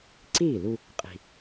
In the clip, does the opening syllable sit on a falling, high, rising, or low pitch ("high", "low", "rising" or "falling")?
falling